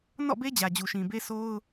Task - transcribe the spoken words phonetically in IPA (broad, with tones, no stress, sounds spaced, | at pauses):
n ɔ̰˦˨ b e˦ d͡ʑ ä˨ d͡ʑ u˨ ʃ ĩ˨ b e˦ sʰ o˦ ʊ̯